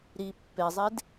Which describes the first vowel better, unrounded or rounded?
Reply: unrounded